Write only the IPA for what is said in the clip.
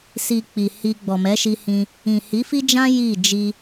si˧k͡pi˨hi˧ ɡ͡bɔ˨mɛ˨˦ʃi˧hĩ˧ | ĩ˨hi˨˦fi˦d͡ʒã˦ ji˦˨ d͡ʒi˧

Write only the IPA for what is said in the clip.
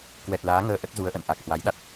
kwɛ˨˩t̚laː˨˦ŋəː˧ ʔə˦˥t̚zu˨˦ə̯ʔə̰˧˨n ʔa˨˩k̚hwa˨˦jɗa˦˥t̚

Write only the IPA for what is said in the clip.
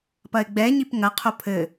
pɐɪ̯ɡ͡bɛ ɲipŋɐ qʰopʰɘ

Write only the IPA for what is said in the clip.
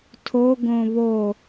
tʰo ɡõβo

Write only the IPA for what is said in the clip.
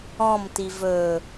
ɔ̃mti vɵ

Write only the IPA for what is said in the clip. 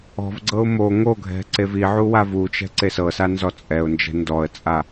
ɔ̤vɡ͡ǀɤʊ̯ mo ŋoɡʱɛ̤ ǀeviʕu wavut͡ʃɛ̤ ǀesɤsa nzɔt͡sʼɛʊ̯nd͡ʒɛ̤ ndɔə̯t͡sʼa

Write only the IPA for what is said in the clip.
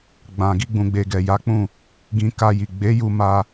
ɡ͡bã˨ ɡi˧ɡ͡bũ˨ɡ͡be˨ɡɛ˨ ja˨˦k͡pũ˦˨ | ɡĩ˧ ka˧ji˨ ɡ͡be˨˦ju˧ ma˧

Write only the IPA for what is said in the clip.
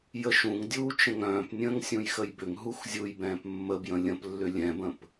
jəʃũŋdʲuː t͡ʃə̃ŋœ̃ːpnʲə̃ːŋ sʲũjxəjbʏŋɦux zʲujbɛ̃ːp mːəbjə̃ lʲə̃plːʏ lʲɛ̃bə̃p

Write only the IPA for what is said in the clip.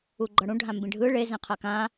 uɡ͡ǃʌɽũ ɖʱãmbĩɖʱɯ ɭe zẽqʰakã

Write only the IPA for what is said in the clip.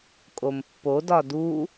kʼompːodɒ du

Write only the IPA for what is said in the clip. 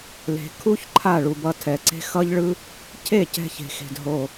le̤˨ kʰu˦ç ǃʰa˦˨ɭu˨bʌ˧ tʰɛ˨ǀe̤˦ xʌ˦ʎɭɯ˦ | cʰe˦˨cɛ̤˧çe̤˨xe̤˨d ɦo˨

